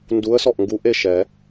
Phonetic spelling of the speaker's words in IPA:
n d u˧˥ ə̯ s ɔ˥˨ ʔ ŋ ɡ u˧˥ ʔ e˥˨ ʃ ɛ˨˩˦

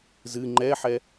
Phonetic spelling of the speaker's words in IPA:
z ɨ ŋ͡ǃ ɛ ħ ɛ

